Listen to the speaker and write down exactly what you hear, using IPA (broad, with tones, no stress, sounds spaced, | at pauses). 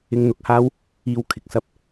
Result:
ɪ˧ ŋ n̪ ʊ˨˥ k̚ h aː˥ w | iː˧ w kʰ ɪ˨ k̚ s ɐ˥ p̚